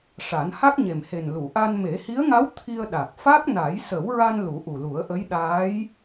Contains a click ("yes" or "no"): no